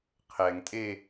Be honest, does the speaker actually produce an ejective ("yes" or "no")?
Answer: yes